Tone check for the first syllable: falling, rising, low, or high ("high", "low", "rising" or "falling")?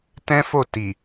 high